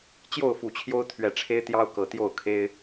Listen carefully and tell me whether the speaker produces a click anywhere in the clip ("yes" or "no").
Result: no